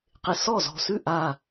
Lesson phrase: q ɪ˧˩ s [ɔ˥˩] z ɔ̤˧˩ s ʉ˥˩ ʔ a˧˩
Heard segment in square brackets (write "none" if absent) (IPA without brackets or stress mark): ɔ˥˩